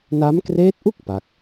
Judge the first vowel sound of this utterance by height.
low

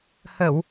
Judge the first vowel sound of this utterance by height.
mid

